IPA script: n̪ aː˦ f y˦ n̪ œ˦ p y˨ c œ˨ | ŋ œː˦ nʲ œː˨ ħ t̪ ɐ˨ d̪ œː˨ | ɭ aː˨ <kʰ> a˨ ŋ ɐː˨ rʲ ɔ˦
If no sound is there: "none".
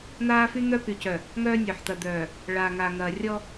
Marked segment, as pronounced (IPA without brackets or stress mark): ŋ